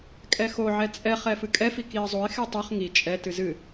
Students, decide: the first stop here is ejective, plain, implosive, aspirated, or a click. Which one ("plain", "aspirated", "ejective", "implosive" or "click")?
ejective